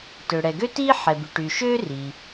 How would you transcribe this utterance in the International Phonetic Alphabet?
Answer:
tø˩ɽɛ˩ɡø˥tiː˥ ħɛ˩by˩ʈyː˩ ʃøː˥riː˩

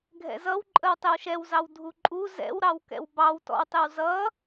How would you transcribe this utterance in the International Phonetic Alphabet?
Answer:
ɡʱɛ̰zʌwǃʼəw tˤɪwʃɛwzɑw dʱuǃʼu zɛ̰wɾɑwkɛ̰w bɑwtɔ̰wtˤɪw zʌ

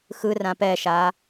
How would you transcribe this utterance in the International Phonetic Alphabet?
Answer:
xɯrã pɛʃa

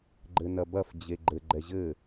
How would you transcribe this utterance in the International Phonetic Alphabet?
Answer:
ɡ͡ǃɘnɐbɐf d͡ʑeɡ͡ǃɘ ɡ͡ǃɛʑɘ

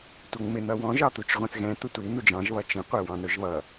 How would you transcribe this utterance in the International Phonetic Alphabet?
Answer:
tʷʌŋmɪ n̪ʌwɔ̃ ʒɑt̪ut͡ʃʁʷɛ̃θɣɛ̃ t̪ʊtʷi n̪ud͡ʒɑ̃ʒ βʌt͡ʃĩ qʷɛwɑ̃nʊʒβʌ

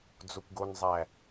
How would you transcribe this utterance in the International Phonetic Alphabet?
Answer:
d͡zokʷɡonzˤæ

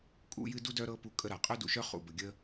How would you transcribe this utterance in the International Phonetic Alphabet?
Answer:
kʼṵ˦jɨ˦du˥dœ˦ ɾɤ˦ pu˦kʼə˥ ɾa˩qʼœ˥dṵ˨ʃœ˥ χṵ˩bə˨ ɡʲə˥

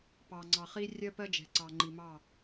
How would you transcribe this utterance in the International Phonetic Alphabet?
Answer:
pɑ˨ŋ͡ǀɑ˨χi˦ rʲɜ˦ pɜ˦d͡ʒɛ̤˨ǀɑ˨ŋ͡ǃi˨ mɑ˦˨

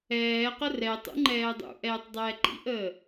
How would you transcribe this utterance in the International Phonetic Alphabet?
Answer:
ɛːqə rɛtˤṵ ŋ͡ǃɛːdˤṵʔɛːtˤ dˤɛːǃḭʔəː

